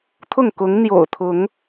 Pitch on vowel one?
falling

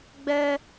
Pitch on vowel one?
high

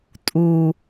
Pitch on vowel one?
low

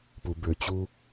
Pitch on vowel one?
low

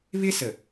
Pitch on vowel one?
high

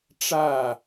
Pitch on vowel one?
falling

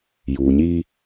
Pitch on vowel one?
low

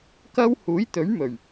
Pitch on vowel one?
high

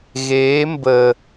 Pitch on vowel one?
rising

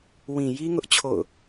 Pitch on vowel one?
low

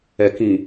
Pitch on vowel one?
low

